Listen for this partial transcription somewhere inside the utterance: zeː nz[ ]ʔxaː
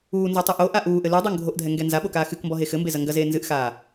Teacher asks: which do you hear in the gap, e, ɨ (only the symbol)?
ɨ